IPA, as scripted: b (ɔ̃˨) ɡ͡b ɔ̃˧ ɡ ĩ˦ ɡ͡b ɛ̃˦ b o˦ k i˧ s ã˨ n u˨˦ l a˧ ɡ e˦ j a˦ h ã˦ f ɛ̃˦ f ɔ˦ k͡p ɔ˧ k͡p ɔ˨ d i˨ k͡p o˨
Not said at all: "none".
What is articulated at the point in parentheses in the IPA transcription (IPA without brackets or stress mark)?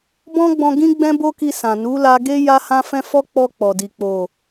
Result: ɔ̃˦